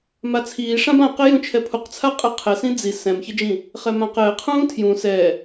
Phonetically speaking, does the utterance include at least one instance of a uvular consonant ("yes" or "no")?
yes